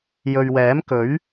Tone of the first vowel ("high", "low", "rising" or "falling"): low